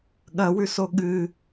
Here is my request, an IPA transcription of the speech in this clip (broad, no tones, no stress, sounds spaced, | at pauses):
ɠ ɐ w ʉ s o ɠ ɨ